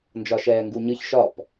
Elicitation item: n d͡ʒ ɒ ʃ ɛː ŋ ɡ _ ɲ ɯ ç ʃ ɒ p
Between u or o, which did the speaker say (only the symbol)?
u